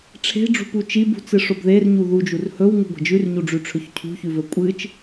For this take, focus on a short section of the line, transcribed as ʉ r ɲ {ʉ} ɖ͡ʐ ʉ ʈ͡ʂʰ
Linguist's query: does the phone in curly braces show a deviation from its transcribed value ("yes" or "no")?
yes